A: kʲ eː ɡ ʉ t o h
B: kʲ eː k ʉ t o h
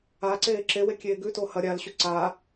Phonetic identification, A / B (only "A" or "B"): A